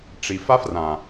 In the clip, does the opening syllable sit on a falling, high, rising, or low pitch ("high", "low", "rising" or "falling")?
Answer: low